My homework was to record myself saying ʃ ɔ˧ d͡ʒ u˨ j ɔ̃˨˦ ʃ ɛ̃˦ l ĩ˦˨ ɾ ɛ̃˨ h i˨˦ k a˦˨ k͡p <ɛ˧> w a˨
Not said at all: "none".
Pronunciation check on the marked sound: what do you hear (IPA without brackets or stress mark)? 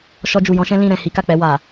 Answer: ɛ˧